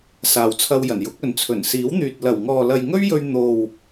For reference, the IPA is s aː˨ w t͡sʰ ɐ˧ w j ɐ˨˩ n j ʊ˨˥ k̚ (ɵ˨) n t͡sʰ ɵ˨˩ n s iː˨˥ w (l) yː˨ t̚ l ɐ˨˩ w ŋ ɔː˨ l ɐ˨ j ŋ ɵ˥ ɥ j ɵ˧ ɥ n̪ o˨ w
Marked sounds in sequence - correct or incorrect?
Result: correct, incorrect: n̪

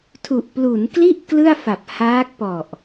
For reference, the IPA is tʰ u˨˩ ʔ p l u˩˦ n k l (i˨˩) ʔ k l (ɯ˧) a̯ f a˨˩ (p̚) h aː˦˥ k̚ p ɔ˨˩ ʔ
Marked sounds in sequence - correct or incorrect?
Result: incorrect: i˥˩, incorrect: ɯ˥˩, correct

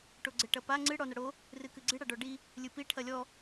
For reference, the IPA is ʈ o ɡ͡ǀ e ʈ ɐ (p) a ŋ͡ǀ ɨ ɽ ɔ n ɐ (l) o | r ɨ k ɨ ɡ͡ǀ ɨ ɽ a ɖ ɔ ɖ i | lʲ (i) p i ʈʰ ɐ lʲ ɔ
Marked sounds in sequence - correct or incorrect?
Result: correct, incorrect: ɽ, incorrect: ɨ

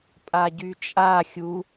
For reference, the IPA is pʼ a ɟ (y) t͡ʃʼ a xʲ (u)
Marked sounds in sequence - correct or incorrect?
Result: correct, correct

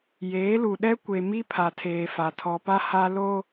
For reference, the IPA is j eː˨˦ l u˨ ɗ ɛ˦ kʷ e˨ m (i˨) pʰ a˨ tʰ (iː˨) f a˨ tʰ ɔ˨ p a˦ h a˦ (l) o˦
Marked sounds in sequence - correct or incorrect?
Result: incorrect: i˦, incorrect: eː˨, correct

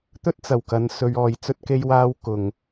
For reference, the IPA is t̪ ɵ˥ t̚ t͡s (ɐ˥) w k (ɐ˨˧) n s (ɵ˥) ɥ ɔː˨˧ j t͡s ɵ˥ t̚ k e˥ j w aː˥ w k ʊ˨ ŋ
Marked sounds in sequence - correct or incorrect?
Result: incorrect: ɐ˨˩, correct, incorrect: ɵ˧

